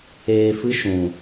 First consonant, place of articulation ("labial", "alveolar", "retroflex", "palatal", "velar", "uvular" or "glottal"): labial